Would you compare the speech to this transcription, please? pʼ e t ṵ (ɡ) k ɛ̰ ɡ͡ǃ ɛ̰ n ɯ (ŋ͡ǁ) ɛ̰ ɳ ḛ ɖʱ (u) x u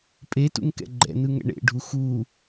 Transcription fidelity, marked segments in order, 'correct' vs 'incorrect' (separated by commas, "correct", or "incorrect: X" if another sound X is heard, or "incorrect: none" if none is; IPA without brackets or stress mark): incorrect: ŋ, incorrect: ŋ, correct